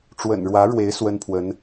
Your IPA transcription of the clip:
ʈ͡ʂ w ə̰˨˩ n ɻ w ä˧˥ ɻ w e˧˥ ɪ̯ s w ə˥ n pʰ w ə˧˥ n

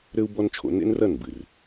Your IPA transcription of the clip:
ɾ ɘ˦ u̯ b ɔ˦ n t͡ʃʰ o̰˧ n ḛ˦ n r ɐ˦˨ n b ɨ˨ r

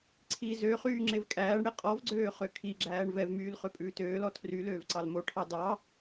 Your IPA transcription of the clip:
ǀʰ i z ø χ yː ŋ͡ǁ e v kʼ æː ɳ ɽ e qʼ ɔ v ɡ͡ǀ øː χ ø kʰ i ɡ͡ǁ æː ɳ v ɛ v m yː l χ ø pʼ ʉː t øː l ɔ tʰ r y l øː v ǀ ɑ l m o ʈʰ ɑ d ɑ

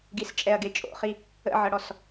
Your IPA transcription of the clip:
ɡ i s t͡ʃʼ ɛ ɐ̯ ɡ e t͡ʃʼ o̰ χ i | ə̰ ʕ ɤ ɽ ɔ s

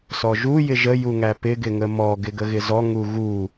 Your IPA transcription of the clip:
s ɔ ʒ u j ɪ ʒ ə j u ŋ æ p ɪ ɡ ɪ ŋ ə m ɔ ɡ ɪ ɡ ə ɣ ɪ z ɔ ŋ u ɣ u

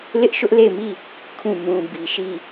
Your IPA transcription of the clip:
l ɪ˦ ʔ ʃ ʊ˦ ʔ l e˦˨ ɪ̯ m i˦˨ | kʰ ũ˦˨ m ũ˨ b i˨ ʃ i˦˨

